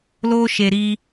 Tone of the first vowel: high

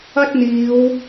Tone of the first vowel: high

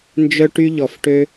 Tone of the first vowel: high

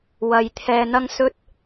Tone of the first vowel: low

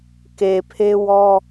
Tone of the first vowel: low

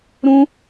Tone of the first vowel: high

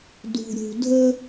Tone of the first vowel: low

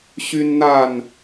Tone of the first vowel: high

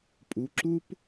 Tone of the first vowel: rising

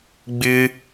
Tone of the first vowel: high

